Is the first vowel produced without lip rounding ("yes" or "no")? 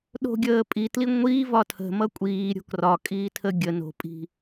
no